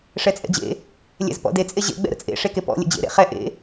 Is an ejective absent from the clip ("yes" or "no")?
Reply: no